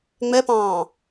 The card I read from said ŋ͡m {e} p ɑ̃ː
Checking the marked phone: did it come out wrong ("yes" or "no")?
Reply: yes